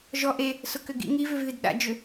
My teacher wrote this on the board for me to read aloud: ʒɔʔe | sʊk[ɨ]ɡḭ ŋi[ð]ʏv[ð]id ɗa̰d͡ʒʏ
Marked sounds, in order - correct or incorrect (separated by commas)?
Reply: incorrect, incorrect, correct